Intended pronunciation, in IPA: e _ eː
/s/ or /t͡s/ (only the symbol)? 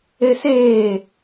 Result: s